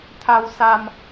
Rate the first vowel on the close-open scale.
open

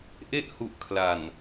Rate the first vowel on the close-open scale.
mid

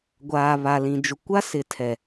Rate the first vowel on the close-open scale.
open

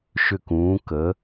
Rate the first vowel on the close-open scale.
close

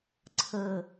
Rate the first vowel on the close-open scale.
mid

